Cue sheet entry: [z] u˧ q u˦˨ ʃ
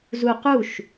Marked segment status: correct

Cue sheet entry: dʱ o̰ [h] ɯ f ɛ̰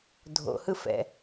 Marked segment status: correct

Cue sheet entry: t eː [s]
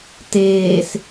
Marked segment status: correct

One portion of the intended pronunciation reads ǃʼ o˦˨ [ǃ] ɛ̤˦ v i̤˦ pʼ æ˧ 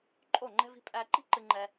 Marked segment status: incorrect: ŋ͡ǃ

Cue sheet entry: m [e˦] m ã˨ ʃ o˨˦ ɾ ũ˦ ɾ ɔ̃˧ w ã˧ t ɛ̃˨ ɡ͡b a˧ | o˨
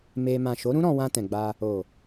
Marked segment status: incorrect: e˧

